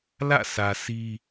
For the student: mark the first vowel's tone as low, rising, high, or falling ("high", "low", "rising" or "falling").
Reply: falling